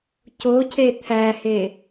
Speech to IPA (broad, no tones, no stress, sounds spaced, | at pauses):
c o cʰ e t̪ʰ æ h e